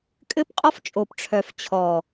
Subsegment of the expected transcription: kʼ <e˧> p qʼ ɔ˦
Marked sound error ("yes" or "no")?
yes